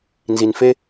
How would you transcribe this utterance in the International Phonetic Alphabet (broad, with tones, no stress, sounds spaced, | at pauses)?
n z i˨ n f e˦